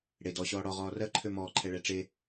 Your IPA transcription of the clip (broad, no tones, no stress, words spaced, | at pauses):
ɽe dɔ ɕɔːɽɔ ʁɔːrɜ ǃʰømɔːǃʰɛɭɛ ʈ͡ʂe